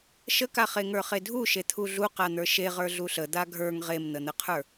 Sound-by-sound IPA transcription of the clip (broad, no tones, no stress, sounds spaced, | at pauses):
ʃ ə k a χ e ŋ ə˞ χ e dʱ u ʃ e t̪ʰ u ɮ u q a n̪ ə˞ ʃ e ʁ ə˞ ɮ u ɬ ə d̪ a ɡʱ ə˞ ŋ ʁ e m n̪ ə n̪ ə qʰ ə˞